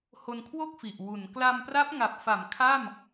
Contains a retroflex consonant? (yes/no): no